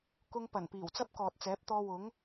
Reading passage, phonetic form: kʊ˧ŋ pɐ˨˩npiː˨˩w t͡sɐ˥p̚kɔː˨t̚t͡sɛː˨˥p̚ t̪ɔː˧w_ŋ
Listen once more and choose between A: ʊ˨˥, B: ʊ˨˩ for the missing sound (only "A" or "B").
A